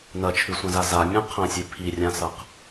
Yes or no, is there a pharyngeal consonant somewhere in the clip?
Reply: no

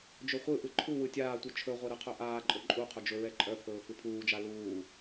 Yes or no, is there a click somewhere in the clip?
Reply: yes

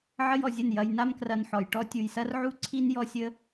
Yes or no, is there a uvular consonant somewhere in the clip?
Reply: no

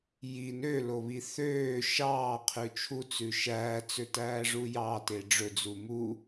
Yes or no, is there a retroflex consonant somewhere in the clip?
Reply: yes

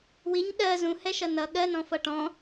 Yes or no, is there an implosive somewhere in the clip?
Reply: yes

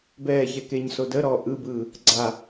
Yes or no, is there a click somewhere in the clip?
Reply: yes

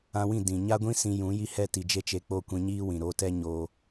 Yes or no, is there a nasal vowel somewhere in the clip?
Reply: yes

